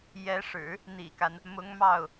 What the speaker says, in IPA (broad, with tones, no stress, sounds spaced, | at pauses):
j ɛ˧˥ ʂ ɻ̩˨˩˦ | n̪ ḭ˨˩ k a˦ n | m ʊ˧˥ ŋ m ɑ˥˩ ʊ̯